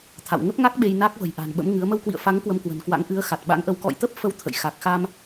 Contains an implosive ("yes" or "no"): yes